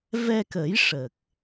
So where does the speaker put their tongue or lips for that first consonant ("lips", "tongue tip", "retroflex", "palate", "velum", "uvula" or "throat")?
lips